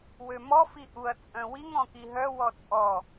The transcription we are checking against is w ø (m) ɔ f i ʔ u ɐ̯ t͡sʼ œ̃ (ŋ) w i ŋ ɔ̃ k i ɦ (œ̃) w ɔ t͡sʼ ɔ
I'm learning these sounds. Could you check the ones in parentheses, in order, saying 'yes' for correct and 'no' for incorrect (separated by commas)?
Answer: yes, no, no